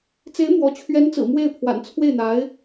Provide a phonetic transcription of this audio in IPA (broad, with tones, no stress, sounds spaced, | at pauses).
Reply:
t͡s e˧˥ ɪ̯ m w ɔ˧˥ t͡ɕʰ ɥ ɛ˧˥ n t͡s ɹ̩˨˩ m w e˥˩ ɪ̯ pʰ w a̰˨˩ n t͡sʰ w e˥˩ ɪ̯ n̪ a˧˥ ɪ̯